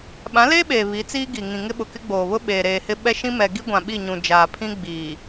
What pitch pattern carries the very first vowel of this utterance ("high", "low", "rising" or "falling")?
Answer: rising